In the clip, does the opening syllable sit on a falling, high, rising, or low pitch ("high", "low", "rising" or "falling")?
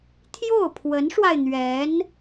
falling